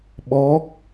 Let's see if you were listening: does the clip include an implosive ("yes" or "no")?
yes